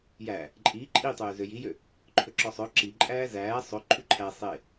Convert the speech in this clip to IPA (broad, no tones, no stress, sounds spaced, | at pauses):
j æ | ǃʼ i ǃʼ i tˤ øː z ø j i j ø | ǃʰ ɵ ǁ ɔ sˤ œ ǁ i ǃʼ æː z æː sˤ ɵ ǃʰ y ǃʰ æ sˤ e